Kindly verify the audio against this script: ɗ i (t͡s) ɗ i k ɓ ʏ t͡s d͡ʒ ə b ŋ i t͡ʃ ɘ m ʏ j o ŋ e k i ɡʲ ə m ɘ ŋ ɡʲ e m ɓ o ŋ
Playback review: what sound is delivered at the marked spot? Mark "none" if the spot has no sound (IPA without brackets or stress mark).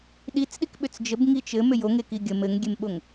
t͡s